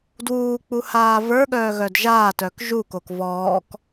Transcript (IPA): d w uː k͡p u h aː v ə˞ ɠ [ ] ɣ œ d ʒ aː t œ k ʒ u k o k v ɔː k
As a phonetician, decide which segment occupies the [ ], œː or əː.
œː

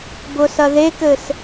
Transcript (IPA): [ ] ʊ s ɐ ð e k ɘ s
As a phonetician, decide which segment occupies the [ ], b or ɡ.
b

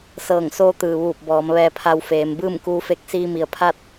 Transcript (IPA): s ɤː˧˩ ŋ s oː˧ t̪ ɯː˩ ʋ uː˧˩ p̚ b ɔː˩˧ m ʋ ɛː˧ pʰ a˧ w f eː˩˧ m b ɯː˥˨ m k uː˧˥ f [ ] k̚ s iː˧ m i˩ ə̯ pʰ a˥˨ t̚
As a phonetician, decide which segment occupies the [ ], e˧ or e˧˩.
e˧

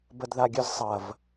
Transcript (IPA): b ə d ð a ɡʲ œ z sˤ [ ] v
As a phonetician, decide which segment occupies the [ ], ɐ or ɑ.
ɐ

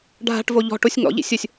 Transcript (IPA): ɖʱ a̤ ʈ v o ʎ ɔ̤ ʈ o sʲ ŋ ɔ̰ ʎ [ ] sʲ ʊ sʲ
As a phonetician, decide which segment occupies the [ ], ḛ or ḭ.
ḭ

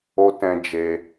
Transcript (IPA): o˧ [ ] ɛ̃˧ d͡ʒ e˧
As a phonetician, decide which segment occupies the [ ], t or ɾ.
t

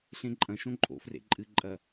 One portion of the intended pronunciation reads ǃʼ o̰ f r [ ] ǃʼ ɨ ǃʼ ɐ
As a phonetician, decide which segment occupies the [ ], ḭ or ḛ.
ḛ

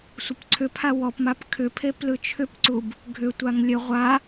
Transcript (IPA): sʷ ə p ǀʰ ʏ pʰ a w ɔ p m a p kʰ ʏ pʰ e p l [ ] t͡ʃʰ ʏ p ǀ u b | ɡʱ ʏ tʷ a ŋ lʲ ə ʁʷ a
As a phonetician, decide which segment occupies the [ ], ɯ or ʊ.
ɯ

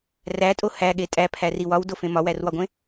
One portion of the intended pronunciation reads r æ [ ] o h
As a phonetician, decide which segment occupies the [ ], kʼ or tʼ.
tʼ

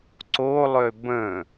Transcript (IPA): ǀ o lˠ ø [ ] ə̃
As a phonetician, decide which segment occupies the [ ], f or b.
b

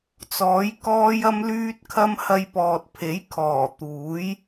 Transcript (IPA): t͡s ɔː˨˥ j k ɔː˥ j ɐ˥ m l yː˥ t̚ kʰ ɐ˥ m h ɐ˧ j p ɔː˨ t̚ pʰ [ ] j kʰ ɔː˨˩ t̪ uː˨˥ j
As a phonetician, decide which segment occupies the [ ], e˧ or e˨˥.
e˨˥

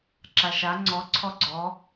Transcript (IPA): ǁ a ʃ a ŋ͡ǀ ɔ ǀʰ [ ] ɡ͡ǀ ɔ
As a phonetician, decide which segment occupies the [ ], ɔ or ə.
ɔ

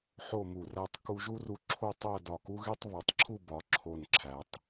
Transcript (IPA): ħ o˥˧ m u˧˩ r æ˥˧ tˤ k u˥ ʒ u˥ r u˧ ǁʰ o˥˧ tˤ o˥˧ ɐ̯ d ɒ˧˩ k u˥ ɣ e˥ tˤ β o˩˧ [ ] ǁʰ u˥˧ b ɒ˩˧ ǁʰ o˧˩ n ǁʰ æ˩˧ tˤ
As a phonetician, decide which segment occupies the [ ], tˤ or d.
tˤ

